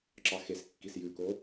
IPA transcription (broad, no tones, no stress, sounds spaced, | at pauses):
ǁ ɑ x e s kː i s j ʉ k o